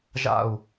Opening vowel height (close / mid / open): open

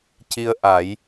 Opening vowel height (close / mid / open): close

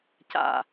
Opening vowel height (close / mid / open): open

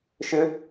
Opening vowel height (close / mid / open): close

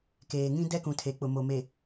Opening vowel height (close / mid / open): mid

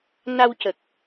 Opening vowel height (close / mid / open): open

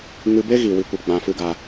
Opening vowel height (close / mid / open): close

